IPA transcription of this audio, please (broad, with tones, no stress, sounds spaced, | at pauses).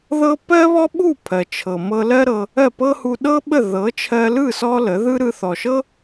ð ɤ˦ p ɜ˦ β ɔ˦ ɓ u˦˨ pʰ ɜ˨ t͡ʃʰ ɤ˨ m ɤ˧ l ɜ˦ ɾ ɤ˧ | ɜ˦˨ p ɤ˦ h u˧ ɗ ɤ˦ ɓ ə˦˨ ð ɤ˨˦ t͡ʃʰ ɜ˧ l ɯ˦˨ s ɔ˦ l ə˨˦ ð ɯ˦ ɾ ɯ˧ θ ɔ˨ ʃ ɤ˦